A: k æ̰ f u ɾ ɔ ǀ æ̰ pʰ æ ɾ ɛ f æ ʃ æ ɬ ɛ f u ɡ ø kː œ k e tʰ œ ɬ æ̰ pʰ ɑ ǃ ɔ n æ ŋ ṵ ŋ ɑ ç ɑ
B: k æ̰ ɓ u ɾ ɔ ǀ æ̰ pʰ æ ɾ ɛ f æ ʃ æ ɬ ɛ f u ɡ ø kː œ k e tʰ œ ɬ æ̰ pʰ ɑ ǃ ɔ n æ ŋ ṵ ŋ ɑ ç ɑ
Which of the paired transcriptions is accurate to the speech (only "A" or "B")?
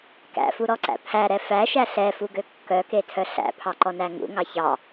A